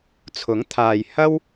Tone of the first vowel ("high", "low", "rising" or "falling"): rising